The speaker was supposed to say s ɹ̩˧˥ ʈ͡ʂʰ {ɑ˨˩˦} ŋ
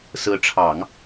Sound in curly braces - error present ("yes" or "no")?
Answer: no